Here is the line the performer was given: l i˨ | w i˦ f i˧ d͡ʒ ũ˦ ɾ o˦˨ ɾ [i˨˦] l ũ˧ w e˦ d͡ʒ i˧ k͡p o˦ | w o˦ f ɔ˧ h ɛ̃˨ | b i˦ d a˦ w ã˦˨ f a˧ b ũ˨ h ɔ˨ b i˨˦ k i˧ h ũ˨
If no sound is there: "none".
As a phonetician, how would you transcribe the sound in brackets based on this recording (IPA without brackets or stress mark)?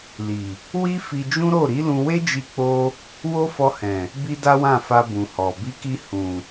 i˨˦